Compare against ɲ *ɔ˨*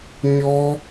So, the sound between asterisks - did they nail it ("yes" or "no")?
no